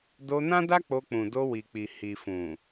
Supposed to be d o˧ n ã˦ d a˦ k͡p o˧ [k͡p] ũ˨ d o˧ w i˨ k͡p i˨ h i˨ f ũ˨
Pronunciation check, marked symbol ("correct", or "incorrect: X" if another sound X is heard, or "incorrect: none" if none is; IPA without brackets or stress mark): correct